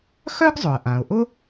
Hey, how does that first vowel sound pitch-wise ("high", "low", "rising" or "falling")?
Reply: high